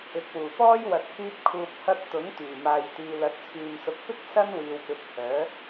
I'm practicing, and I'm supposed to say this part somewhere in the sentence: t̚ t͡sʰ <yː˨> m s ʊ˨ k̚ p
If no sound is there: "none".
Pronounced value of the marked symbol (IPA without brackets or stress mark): yː˨